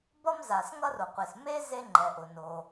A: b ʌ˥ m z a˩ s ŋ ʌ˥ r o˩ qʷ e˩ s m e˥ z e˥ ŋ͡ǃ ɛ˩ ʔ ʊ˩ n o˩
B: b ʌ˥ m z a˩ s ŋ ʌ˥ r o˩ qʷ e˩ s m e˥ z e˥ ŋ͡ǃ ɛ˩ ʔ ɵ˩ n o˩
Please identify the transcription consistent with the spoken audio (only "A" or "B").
A